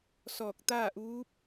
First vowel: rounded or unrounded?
rounded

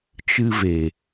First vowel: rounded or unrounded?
unrounded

